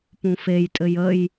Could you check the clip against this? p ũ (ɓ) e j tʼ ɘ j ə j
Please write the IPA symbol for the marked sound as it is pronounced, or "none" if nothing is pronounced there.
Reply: f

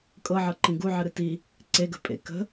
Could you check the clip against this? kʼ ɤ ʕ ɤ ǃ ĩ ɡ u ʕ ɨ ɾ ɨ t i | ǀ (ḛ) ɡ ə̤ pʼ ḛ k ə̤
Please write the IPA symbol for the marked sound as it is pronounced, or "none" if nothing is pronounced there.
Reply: e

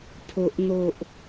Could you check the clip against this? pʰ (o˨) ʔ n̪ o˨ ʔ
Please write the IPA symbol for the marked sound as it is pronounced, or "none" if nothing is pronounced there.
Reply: o˨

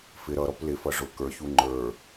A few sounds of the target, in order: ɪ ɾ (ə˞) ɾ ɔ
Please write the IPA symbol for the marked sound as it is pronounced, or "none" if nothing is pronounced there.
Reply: ʌ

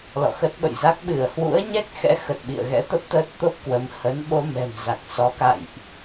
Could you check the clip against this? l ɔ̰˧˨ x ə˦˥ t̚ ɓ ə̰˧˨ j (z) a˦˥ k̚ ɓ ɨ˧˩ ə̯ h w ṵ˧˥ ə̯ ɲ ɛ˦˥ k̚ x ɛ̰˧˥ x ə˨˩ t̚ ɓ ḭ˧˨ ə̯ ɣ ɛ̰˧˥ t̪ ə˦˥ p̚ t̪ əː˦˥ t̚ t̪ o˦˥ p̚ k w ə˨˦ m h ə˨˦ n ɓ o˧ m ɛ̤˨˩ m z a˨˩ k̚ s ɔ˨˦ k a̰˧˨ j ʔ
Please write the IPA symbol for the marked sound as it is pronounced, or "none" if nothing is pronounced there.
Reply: z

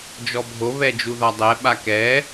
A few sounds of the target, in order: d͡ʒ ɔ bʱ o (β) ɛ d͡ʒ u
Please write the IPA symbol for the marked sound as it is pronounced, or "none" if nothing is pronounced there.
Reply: β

